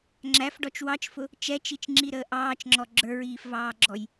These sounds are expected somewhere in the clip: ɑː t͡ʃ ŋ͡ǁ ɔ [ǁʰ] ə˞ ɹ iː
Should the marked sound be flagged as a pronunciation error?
yes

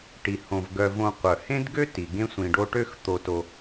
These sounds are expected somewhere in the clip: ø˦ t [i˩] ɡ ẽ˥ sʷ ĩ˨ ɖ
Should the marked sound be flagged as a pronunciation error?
no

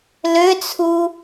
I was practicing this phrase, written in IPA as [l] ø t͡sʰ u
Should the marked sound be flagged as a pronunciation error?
no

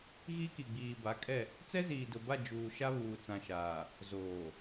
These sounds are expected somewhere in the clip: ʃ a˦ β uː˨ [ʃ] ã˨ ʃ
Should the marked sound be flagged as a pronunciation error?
yes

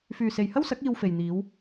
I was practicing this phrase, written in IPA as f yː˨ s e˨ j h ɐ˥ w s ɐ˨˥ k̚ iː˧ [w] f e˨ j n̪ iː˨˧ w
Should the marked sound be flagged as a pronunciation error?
no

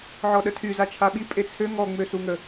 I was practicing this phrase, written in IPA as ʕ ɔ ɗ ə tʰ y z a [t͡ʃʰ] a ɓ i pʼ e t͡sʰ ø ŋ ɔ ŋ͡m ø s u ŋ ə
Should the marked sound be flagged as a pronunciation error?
no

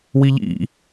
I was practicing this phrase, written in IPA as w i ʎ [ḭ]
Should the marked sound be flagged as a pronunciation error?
no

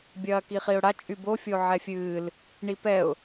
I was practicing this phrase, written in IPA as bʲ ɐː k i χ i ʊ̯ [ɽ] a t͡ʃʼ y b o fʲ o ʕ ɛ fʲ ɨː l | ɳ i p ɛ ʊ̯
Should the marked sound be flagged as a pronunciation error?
no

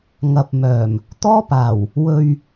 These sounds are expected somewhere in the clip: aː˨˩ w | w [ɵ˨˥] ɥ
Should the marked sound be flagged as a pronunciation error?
yes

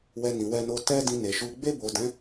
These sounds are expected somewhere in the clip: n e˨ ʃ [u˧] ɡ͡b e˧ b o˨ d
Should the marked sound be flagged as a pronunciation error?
no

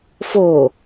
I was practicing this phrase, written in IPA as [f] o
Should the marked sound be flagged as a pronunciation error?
no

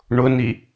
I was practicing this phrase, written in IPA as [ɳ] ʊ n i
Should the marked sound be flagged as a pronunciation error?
no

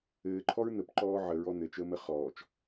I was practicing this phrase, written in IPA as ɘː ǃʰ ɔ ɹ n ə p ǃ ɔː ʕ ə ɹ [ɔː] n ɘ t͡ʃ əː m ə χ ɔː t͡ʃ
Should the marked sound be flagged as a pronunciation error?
yes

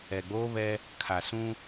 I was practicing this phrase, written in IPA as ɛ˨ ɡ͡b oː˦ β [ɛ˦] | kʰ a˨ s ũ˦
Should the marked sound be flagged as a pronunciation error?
no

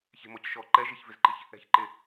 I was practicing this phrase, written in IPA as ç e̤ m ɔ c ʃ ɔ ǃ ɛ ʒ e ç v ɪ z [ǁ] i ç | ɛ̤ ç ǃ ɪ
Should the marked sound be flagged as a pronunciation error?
yes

